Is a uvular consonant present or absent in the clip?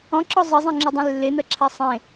absent